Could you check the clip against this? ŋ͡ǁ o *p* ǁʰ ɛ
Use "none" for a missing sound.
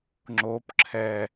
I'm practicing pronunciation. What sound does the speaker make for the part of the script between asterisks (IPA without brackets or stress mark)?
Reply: p